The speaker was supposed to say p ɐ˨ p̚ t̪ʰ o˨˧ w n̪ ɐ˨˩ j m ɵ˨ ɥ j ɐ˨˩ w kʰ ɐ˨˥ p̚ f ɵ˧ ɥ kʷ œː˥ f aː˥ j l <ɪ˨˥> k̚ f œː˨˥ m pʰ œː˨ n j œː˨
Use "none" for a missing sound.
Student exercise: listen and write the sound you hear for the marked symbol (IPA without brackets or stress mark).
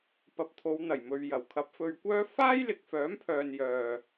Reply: ɪ˨